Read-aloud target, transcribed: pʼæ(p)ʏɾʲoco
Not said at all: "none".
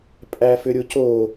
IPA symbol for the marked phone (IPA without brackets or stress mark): f